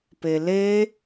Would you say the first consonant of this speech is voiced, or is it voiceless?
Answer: voiceless